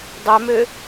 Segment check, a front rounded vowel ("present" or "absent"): present